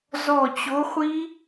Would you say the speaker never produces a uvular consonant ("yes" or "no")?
no